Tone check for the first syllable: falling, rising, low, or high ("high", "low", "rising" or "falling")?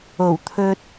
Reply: low